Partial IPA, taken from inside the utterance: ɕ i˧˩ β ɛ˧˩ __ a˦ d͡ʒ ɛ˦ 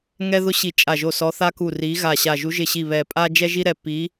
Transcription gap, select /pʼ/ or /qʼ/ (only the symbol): pʼ